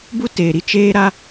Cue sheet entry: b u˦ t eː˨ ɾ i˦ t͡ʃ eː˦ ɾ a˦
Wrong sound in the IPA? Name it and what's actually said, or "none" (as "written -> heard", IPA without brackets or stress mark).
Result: none